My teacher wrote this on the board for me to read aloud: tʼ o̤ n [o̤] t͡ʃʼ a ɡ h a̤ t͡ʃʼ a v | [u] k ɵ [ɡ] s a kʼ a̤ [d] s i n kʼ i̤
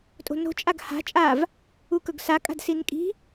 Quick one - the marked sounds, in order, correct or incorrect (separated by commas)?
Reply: correct, correct, correct, correct